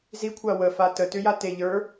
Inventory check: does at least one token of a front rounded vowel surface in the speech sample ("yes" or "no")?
yes